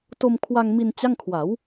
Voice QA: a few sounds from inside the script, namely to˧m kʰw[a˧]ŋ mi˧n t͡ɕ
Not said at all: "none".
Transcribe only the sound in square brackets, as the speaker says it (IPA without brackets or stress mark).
a˧